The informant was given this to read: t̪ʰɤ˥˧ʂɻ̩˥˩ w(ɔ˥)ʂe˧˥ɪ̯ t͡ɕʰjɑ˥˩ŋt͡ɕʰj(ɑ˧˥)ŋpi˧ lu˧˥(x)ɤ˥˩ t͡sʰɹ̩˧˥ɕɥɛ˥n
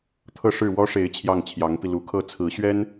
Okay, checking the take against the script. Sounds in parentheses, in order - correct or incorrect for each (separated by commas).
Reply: correct, correct, incorrect